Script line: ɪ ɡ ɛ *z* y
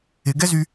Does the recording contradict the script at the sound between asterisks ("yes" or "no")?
no